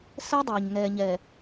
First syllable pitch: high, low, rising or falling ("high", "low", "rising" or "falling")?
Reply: high